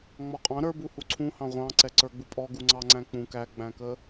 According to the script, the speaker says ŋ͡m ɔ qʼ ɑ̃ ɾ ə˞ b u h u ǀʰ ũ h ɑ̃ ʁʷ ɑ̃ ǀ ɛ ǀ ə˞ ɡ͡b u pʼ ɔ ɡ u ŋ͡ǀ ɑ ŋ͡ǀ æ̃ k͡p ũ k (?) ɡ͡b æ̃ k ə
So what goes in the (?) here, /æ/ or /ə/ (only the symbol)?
æ